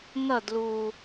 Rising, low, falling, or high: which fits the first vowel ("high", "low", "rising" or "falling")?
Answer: falling